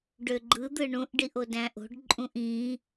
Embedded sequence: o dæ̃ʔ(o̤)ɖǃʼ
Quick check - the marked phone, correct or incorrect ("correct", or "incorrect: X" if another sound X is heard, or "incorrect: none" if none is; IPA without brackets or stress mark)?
correct